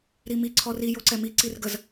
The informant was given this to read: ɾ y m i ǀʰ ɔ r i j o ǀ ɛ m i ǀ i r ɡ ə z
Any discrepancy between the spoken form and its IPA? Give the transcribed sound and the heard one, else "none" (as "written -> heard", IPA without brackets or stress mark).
y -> i